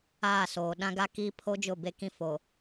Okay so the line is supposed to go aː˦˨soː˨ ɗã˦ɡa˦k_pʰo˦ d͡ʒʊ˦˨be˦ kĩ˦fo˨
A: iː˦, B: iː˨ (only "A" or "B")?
A